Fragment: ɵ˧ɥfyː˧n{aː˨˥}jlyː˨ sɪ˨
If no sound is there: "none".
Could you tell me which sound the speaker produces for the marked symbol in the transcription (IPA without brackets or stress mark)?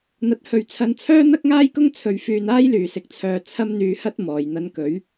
aː˥